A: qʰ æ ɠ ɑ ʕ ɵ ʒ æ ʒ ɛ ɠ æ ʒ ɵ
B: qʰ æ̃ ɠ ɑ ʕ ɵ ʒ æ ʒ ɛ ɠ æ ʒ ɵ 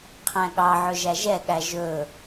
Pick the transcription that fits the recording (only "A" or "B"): B